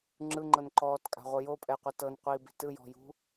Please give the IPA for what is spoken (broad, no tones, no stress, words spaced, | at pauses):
ŋ͡ǁɯŋ͡ǃɤn ǃɔːtkʼa̤ʁʷɤ jopʼɛqʷɤ tɤnqʷiːbi̤ tɯjɔ̤jṳ